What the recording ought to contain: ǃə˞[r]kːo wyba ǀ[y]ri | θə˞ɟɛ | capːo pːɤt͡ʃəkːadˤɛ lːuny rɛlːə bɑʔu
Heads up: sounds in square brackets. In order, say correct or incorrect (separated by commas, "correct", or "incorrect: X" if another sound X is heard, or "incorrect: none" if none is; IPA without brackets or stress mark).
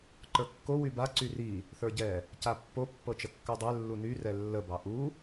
incorrect: none, correct